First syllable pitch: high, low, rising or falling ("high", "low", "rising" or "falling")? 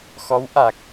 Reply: rising